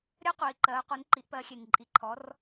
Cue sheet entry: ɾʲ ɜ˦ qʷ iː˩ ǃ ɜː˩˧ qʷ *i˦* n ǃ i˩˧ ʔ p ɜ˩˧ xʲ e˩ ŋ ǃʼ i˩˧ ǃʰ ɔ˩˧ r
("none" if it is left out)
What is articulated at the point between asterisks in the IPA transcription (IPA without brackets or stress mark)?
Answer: i˩˧